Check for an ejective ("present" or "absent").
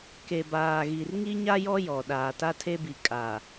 present